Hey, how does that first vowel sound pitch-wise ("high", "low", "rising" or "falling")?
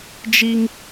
high